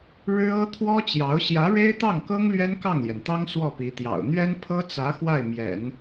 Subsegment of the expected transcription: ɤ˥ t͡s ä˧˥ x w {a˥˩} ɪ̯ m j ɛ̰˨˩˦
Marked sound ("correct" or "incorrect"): correct